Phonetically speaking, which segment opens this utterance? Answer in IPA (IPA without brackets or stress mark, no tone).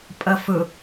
pʼ